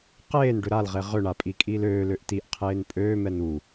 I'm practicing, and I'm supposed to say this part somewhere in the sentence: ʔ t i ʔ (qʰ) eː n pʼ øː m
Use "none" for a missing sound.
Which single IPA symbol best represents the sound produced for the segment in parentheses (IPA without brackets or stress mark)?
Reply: qʰ